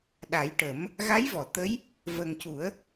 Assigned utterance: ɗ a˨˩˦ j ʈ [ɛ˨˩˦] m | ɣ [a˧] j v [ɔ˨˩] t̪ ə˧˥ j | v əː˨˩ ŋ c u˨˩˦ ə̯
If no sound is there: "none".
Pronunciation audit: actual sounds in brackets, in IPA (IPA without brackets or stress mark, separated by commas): ə˨˩˦, a˧˥, ɔ˨˩˨